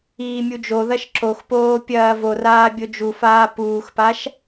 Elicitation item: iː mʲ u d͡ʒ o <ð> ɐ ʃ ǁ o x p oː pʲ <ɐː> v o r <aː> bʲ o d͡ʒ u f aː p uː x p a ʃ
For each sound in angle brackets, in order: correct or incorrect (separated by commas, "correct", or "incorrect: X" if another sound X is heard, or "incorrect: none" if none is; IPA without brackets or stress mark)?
correct, correct, correct